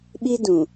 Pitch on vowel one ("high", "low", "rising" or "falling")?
high